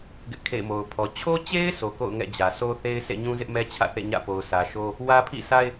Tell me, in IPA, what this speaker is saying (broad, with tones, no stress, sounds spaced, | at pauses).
ɡ ɪ˦ ʔ kʰ ḛ˦˨ ɪ̯ m o˨ ʊ̯ pʰ ɔ˨ t͡ɕʰ o˦ t͡ɕ e˦ ɪ̯ s o˨ k o̰˦˨ ʊ̯ ŋ ɛ̰˦˨ d͡ʑ ä˨ s o˦ θ e˦ ɪ̯ sʰ ḛ˦˨ ɲ ũ˦ z ɪ˦ ʔ m ɛ˦ t͡ɕʰ ä̰˦˨ θ ḛ˦˨ ɲ ä̰˦˨ p o˨ ʊ̯ s ä˨ ʃ o˦ | w ä˦ pʰ ḭ˦˨ sʰ a˦ ɪ̯